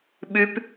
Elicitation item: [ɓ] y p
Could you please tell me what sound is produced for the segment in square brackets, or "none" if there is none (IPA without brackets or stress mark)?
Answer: ɓ